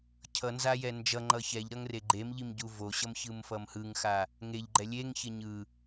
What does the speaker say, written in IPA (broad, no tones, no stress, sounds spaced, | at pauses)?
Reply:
cʰ ʌ n z a j ɛ n d͡ʒ ʌ ŋ͡ǃ ʌ ç ɛ ʎ ɾ ʌ ŋ r e ɡ͡ǃ e m ʎ i m ɟ u v o ɕ ʌ m ç ɯ m f ʌ m h ɯ ŋ x a | ŋ e ʎ ɡ͡ǃ ɛ lʲ e ŋ ç e ɲ ɯ